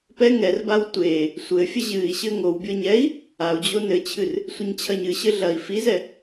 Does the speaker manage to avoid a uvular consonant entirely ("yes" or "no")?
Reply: yes